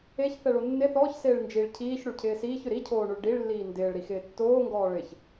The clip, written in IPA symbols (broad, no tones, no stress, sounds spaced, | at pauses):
e ç θ ɛ ɭ o nː e θ ɔː ç s eː ɭ n d͡ʒ i ɭ cʰ iː ç ɽ ʏ ɭ cʰ ɪː s iː ç ʏ ɾ i cʰ oː ɳ ʏ ɭ ɖ i ɭ lː iː n d ɪː ɭ ɾ i x ɪː tː oː ŋ ɡ ɔː ɭ ɪ ç